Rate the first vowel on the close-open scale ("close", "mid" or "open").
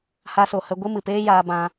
open